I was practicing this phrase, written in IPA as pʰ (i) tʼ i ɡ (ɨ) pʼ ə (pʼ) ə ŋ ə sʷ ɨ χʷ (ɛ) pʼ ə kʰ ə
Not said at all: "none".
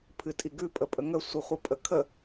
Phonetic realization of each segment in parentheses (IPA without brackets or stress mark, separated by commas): ɨ, ʉ, pʼ, ɨ